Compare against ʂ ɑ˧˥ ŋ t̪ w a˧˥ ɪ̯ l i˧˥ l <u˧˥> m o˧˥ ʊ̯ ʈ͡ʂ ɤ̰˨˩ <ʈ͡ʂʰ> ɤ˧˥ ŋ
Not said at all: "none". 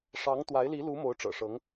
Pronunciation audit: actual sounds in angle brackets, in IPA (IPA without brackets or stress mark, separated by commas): u˧˥, ʂ